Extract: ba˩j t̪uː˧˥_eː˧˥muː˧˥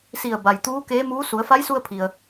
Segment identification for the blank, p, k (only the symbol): k